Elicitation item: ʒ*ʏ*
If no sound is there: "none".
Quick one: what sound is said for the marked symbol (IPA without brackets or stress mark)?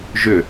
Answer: ʏ